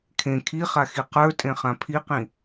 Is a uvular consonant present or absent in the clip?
present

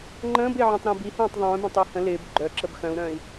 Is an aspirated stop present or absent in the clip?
absent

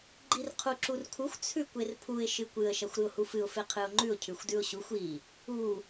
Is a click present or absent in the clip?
present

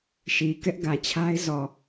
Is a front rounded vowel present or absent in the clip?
absent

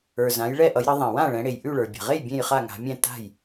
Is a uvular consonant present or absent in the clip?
present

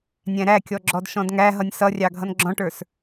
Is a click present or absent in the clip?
present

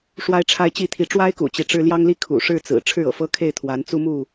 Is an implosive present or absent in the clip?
absent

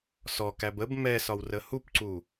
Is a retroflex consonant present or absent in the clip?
absent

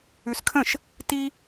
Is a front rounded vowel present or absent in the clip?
absent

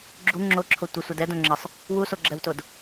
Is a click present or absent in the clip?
present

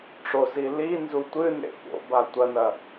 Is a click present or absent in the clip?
absent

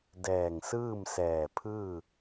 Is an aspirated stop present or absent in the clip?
present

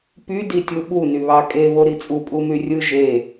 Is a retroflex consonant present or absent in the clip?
absent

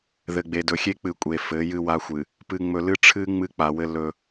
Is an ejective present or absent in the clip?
present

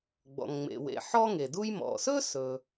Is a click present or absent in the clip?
absent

